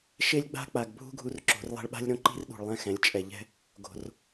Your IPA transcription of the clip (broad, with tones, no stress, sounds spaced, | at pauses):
ʃ e˦ lʲ ɡ͡b a̤˦ k͡p a˨ ɡ bʱ ṳ˦ ɡʱ u˦ r ǁ o̤˨˦ r lˠ ɛ̤˦ ɭ ɓ a̤˦ lʲ ɾ õ˦ ǃ i̤˦ r ɗ ṳ˨ ɭ lˠ ɛ̃˦˨ x ɛ̃˨˦ lʲ t͡ʃʼ ɛ˨ ʎ ɛ̤˦ | ɡ o̤˨ r